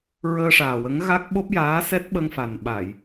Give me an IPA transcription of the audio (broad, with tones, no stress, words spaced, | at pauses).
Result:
ɹəː˧ʂaː˨˩wə˧˥ŋ ɣa˦˥k̚ ɓo˦˥p̚jaː˧˥sɛ˦˥t̚ ɓə˧ŋfa˨˩n ɓa˨˩˨j